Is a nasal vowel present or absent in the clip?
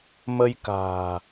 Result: absent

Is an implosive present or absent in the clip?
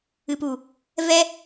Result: absent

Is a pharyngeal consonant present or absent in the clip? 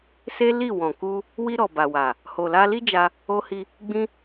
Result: absent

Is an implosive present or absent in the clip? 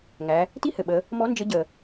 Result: present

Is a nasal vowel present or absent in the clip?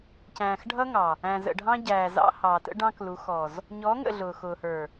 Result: present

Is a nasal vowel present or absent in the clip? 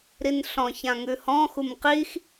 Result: present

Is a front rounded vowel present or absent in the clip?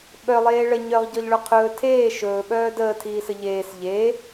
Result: present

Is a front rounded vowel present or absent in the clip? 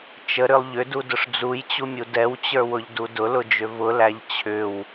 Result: present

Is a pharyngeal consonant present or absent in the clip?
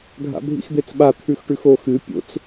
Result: absent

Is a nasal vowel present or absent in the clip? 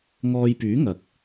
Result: absent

